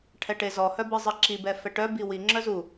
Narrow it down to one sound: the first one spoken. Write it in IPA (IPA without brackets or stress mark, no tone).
ʈʰ